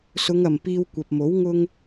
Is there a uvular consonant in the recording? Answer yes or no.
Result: no